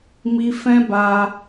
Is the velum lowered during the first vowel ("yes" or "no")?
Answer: no